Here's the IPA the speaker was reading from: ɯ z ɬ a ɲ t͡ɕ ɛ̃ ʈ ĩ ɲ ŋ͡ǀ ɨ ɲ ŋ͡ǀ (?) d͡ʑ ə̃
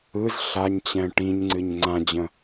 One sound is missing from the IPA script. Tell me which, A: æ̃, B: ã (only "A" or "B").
B